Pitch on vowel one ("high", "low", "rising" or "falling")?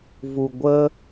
low